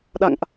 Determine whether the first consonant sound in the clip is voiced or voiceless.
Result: voiced